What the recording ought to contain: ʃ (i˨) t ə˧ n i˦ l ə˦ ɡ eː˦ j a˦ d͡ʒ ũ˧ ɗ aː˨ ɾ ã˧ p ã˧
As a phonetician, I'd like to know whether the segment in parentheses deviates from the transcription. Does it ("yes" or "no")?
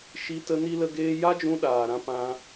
yes